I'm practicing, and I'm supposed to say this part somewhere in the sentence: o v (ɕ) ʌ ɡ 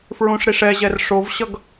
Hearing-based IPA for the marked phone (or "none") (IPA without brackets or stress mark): ɕ